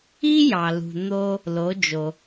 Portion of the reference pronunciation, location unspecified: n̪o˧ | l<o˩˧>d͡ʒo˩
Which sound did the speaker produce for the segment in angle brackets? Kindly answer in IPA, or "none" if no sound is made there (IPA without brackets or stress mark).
o˩˧